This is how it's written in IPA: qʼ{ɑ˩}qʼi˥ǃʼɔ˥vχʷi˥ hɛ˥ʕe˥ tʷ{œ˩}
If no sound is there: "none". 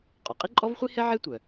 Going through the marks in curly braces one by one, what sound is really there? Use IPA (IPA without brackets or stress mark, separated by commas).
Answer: ɔ˩, œ˩